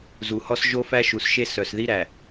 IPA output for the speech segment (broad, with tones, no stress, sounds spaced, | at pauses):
z u˨ h ɔ˦ s ʒ o˦ f æ˦ ʃ u˨ s ʃ e˦ s œ˨ s ð i˦ ɾ æ˨